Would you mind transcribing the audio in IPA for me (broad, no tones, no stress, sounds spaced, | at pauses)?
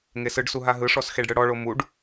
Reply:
ŋ e s ɯ ɖ s u ɦ a ɦ ɯ ʂ ɔ s x e ɖ ɽ ɯ ɽ ɔ ɭ o m u ɖ